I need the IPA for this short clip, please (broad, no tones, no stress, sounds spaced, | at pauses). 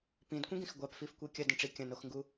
p ĩ d kʷ ĩ ɡ ĩ x ɡʷ a p f i f kʷ e kʲ ɐ d ɐ̃ ʈ͡ʂ i kʲ ɐ̃ n o x ŋ ɡ u